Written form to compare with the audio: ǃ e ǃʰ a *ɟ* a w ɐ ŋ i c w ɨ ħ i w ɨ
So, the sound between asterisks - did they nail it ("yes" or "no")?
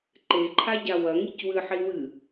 yes